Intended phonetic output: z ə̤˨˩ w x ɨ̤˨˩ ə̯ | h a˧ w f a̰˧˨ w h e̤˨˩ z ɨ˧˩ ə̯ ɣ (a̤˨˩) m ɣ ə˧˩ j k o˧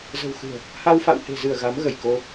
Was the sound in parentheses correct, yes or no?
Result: no